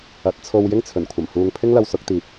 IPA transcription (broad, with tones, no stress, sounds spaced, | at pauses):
ɐ˨˥ t̚ t͡sʰ o˧ w j ɪ˥ ŋ t͡sʰ ɵ˨˩ n kʷʰ ɐ˨˩ m h uː˨ ŋ pʰ ɪ˥ ŋ l ɐ˧ w s ʊ˨˥ k̚ t̪ iː˨ p̚